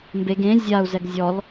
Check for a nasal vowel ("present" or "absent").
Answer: present